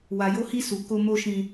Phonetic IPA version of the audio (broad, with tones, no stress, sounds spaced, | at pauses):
w a˧ j o˦ h i˦ s u˧ k o˦ m o˦ ʃ ĩ˦